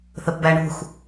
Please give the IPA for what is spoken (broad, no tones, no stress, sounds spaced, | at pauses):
θ ə p b æ ɳ ṳ x